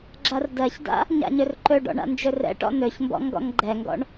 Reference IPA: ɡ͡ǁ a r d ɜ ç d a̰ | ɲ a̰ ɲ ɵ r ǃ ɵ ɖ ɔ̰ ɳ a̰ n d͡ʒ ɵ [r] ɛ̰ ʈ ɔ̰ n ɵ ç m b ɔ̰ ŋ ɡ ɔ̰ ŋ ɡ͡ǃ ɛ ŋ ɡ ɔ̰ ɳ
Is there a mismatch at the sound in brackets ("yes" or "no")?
no